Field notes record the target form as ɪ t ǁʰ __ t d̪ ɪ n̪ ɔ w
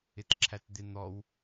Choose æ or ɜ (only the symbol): æ